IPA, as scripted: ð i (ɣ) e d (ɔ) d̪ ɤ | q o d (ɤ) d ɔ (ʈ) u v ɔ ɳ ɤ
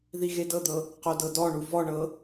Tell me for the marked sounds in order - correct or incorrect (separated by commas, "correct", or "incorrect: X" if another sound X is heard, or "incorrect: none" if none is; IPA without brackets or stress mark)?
correct, incorrect: ɤ, correct, incorrect: ɳ